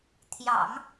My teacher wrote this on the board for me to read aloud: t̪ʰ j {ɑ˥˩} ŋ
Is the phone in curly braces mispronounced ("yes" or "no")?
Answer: yes